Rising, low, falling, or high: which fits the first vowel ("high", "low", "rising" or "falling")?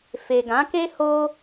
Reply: low